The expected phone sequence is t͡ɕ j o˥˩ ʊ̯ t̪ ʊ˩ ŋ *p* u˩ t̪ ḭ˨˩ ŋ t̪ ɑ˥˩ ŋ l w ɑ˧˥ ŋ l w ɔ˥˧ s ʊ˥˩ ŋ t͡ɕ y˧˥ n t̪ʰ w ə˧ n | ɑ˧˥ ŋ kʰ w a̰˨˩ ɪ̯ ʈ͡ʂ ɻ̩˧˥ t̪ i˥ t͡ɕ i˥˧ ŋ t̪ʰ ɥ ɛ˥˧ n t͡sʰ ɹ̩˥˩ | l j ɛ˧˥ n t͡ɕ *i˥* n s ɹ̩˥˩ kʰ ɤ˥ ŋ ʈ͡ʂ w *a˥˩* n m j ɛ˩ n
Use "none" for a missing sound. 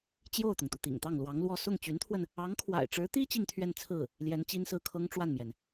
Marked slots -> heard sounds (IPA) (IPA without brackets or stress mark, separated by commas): t̪, i˥, a˥˩